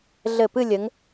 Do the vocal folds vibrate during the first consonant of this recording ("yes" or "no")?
yes